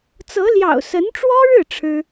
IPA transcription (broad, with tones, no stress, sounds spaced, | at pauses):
t͡s ɤ˧˥ l j ɑ̰˨˩ ʊ̯ s ə˧˥ n ʈ͡ʂ w ɔ˥ ɻ ɻ̩˥˩ ʈ͡ʂʰ ɻ̩˥